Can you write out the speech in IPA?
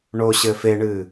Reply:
ɳ o ɕ ɘ f e ɳ ɨ

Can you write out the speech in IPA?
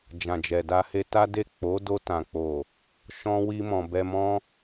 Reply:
d͡ʒ ã˨ d͡ʒ ɛ˨ d a˧ h e˧ t a˦ d e˦˨ k͡p o˨˦ d o˧ t ã˨ k͡p o˨ | ʃ ɔ̃˦ w i˧ m ɔ̃˨ b ɛ˧ m ɔ̃˦

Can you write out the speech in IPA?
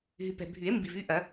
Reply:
ɦ y˨ p ɛ̤˨ bʱ y˨˩˦ e̯ m b i˨ v y˥˧ ʔ ɐ˨˩˦

